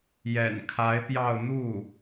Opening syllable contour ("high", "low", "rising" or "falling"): low